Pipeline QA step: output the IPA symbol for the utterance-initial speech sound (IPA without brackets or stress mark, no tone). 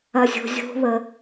ɐ